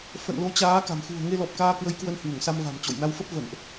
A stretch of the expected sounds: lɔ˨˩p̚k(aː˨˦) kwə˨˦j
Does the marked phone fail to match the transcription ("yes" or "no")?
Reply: yes